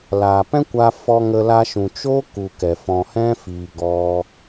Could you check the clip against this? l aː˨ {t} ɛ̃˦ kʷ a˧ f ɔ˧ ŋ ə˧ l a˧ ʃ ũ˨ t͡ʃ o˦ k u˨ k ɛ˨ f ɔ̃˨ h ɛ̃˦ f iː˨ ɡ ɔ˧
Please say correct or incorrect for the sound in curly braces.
incorrect